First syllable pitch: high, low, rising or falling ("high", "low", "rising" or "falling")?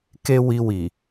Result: high